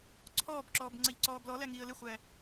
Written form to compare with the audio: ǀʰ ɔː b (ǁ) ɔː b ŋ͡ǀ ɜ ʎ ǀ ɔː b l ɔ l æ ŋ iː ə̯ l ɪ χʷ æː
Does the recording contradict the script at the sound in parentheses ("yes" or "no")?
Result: no